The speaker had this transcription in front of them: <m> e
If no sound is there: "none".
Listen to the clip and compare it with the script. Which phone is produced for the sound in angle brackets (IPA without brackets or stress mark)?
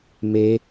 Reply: m